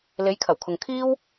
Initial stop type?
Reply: aspirated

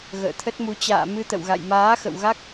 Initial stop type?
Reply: aspirated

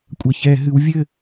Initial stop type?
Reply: ejective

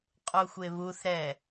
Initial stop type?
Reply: ejective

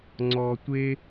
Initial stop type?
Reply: click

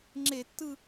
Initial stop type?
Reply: click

